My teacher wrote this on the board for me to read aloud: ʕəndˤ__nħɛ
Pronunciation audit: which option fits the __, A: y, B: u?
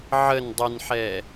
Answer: A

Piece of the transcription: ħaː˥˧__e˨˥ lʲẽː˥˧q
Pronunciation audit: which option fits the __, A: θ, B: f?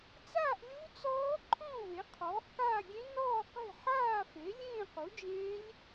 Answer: B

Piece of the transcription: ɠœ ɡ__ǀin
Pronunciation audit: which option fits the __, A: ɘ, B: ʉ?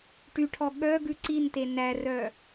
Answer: B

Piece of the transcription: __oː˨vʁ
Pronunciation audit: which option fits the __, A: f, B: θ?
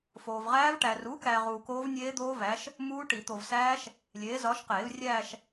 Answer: A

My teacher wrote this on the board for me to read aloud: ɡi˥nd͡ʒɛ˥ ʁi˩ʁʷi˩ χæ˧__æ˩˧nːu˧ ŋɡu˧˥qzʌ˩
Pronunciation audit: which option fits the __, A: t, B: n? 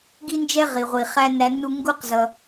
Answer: B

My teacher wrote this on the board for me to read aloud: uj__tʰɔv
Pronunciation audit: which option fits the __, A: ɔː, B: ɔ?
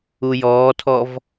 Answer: A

